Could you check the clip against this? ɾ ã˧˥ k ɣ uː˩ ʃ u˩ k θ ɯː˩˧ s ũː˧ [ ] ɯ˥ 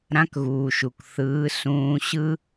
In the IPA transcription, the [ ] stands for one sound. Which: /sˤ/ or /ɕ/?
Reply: ɕ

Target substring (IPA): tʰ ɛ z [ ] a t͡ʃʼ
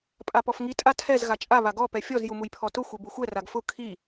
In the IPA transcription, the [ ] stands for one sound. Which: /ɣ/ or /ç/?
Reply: ɣ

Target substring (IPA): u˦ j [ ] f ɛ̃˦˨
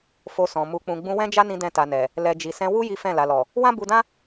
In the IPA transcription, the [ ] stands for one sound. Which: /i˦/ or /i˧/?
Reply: i˦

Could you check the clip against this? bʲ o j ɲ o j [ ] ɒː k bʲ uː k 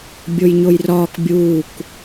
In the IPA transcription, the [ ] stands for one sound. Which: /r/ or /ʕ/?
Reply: r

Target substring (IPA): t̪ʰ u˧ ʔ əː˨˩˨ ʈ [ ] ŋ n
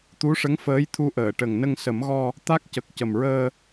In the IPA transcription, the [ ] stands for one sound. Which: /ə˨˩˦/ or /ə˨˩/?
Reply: ə˨˩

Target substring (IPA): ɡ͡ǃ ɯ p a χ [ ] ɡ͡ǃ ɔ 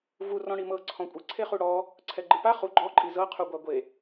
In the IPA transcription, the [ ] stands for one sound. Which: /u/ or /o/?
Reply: u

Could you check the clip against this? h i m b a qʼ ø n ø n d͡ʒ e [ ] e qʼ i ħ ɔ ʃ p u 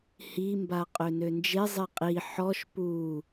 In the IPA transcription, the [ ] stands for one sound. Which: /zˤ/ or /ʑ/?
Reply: zˤ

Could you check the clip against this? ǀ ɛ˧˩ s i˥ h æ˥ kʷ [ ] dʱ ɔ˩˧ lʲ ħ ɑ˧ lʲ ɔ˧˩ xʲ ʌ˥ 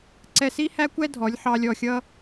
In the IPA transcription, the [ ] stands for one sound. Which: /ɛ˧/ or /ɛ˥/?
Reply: ɛ˥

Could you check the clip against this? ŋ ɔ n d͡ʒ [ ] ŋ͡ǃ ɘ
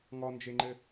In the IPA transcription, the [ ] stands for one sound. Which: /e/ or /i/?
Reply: e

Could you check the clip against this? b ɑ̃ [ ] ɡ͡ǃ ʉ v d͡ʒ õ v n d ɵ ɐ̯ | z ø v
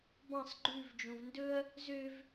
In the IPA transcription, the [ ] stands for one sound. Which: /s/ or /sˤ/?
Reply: sˤ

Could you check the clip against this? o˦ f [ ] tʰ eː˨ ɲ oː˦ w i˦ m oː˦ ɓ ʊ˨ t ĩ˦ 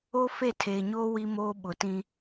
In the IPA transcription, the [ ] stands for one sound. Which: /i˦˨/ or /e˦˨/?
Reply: e˦˨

